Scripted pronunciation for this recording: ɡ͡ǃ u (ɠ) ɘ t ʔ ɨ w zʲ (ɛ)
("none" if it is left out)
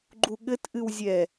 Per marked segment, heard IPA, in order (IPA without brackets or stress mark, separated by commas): ɠ, ɛ